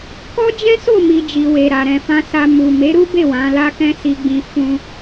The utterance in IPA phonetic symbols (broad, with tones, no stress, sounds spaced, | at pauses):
k ɔ˦ d͡ʒ ɛ̃˦ s o˦˨ m i˨ d͡ʒ i˨ w e˨ ɾ a˨ ɾ ɛ̃˨ f ã˧ s a˧ m u˨ m e˨˦ ɾ u˦ b e˦˨ w ã˨˦ l a˦ k ɛ̃˦ s i˧ ɡ͡b ĩ˧ f ũ˧